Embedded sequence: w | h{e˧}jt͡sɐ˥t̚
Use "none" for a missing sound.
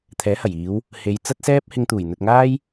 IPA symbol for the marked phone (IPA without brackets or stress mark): e˨˧